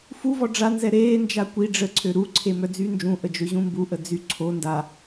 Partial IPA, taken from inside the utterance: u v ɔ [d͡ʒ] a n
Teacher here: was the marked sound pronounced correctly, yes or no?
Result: no